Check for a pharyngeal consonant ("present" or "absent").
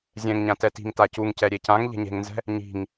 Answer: absent